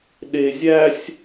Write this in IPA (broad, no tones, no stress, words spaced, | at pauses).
ɗe zʲæsʲ